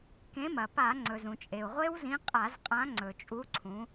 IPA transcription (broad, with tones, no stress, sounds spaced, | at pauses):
k ẽ˨˥ m ɐ˩ p a˧˩˧ ŋ͡ǀ ɵ˩ z ũ˩ t͡ʃʼ e˩ u̯ ʁʷ e˦˥ w z ĩ˨˥ qʼ a˧˩˧ z qʼ ã˨˥ ŋ͡ǀ ɵ˩ t͡ʃʼ u˨˥ ǀʰ ũ˨˥